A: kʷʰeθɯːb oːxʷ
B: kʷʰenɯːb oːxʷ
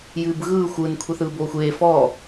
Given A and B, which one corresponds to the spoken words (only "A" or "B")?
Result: A